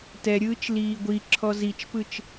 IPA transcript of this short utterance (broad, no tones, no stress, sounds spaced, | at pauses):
t ɛ ɾʲ ɯː t͡ʃ l iː ɡʷ i ǁʰ ɔ z i t͡ʃ p ɯ t͡ʃ